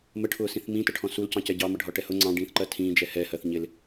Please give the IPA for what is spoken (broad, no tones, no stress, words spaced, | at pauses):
məʈʰʊːsĩθ mĩtəʈʰɔ̃ sulcɑ̃cɛ ɟɑmʌɖʱɒʈɛ hʊ ŋ͡ǀɑ̃ɖĩːθǃɜ tʰĩːd͡ʒɛ hɛhɜθ ɲɪl